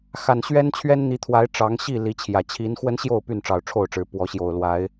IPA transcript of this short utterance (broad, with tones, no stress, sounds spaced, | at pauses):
x a˨˩ n ɕ ɥ ɛ˦ n t͡ɕʰ ɥ ɛ˦ n n̪ i˨˦ t̪ʰ w a˨˦ ɪ̯ ʈ͡ʂ ɑ˨˦ ŋ ɕ i˥˨ l i˨˦ t͡ɕʰ j ä˨˩ t͡ɕʰ i˨˦ n x w ə˦ n ɕ j o˥˨ ʊ̯ p y˥˨ n ʈ͡ʂ ɑ˨˩ ʊ̯ ʈ͡ʂʰ o˥˨ ʊ̯ ʈ͡ʂ ɻ̩˨˦ p w ɔ˨˦ ɕ j o˨˩ ʊ̯ l w a˨˦ ɪ̯